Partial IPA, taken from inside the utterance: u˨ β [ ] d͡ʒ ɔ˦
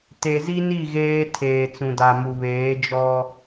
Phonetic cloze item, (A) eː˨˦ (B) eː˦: A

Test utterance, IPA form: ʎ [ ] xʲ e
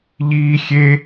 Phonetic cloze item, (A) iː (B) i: A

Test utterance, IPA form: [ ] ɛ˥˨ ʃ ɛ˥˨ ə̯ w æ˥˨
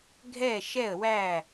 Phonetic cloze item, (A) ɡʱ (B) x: A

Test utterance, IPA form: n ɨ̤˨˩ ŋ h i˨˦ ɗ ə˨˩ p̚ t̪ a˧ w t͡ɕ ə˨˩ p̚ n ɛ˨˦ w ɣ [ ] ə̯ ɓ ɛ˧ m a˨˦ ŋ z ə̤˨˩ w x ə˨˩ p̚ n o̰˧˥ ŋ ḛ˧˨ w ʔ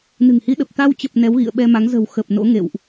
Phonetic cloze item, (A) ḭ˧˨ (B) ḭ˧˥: A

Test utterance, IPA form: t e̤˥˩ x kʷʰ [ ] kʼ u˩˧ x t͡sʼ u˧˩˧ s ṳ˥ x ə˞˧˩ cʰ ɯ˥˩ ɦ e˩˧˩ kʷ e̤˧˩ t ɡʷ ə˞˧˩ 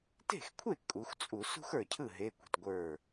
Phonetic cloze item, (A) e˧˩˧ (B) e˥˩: B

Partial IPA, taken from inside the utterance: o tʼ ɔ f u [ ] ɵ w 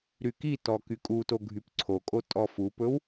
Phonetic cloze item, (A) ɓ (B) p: B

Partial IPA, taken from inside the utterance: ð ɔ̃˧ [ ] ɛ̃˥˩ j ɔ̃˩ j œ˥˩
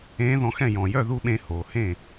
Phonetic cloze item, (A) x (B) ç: A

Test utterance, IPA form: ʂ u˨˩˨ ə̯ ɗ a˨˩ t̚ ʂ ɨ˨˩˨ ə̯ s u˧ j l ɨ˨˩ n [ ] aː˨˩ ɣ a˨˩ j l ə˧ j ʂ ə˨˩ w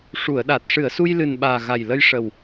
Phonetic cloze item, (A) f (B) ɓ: B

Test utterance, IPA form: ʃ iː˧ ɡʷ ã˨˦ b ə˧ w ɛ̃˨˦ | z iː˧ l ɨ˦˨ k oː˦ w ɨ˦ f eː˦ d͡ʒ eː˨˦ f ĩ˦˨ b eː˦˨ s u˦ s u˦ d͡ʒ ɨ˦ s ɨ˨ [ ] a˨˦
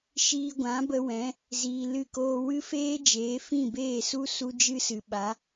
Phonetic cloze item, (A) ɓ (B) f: A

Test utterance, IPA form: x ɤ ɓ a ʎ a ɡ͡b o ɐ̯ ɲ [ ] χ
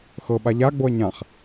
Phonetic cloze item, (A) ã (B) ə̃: A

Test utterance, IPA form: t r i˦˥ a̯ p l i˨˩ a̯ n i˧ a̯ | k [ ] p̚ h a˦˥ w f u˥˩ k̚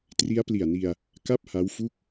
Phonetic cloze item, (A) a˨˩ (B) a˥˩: B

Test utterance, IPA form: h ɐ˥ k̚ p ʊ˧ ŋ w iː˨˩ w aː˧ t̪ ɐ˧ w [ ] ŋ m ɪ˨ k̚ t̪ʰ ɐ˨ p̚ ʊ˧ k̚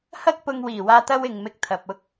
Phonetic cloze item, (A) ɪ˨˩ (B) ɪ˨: B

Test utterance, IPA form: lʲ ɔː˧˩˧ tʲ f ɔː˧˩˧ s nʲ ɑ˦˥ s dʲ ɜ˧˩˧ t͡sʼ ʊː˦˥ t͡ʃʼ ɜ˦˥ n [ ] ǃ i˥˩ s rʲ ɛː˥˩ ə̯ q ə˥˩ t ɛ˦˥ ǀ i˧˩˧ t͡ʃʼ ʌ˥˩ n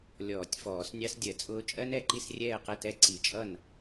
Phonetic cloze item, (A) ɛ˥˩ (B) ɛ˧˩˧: B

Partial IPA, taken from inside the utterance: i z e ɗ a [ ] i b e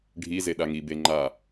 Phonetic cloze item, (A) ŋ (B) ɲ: A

